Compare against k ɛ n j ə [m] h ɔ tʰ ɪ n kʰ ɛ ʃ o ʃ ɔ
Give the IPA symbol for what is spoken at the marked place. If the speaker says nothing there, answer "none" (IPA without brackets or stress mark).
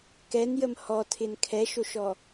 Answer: m